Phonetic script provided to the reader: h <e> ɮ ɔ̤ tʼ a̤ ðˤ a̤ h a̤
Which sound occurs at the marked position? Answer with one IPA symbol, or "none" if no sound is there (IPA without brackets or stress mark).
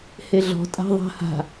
e